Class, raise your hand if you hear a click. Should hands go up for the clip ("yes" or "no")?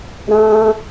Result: no